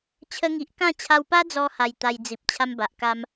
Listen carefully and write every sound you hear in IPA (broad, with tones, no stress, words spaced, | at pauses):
t͡ɕʰə˧ŋi˨ʔkã˥˧ t͡ɕʰa˧wpa˦d͡zɔ˧ha˨˩j t̪a˧jd͡zi˨p̚ t͡ɕʰa˦mba˨ʔka˦m